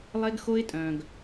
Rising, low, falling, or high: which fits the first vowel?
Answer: high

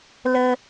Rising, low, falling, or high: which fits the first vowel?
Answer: low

